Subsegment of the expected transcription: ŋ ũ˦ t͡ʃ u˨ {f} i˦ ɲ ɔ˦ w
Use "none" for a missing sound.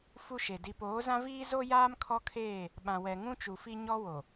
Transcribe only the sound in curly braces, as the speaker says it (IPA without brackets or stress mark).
f